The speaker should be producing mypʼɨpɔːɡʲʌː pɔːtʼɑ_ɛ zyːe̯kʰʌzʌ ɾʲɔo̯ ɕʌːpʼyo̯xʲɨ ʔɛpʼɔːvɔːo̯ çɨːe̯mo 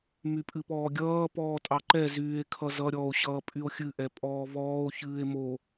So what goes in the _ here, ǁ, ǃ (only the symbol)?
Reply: ǃ